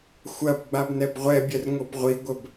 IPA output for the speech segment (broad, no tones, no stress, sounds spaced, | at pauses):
xʷ ɐ b ɡ͡b a b n ɛ b ʁʷ ɛ bʲ ɛ r ŋ o b ʁʷ i ɡʷ ə b